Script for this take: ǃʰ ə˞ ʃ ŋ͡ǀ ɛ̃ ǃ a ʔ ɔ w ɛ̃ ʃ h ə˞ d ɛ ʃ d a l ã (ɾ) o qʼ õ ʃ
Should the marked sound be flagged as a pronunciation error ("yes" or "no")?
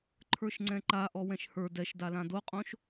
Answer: yes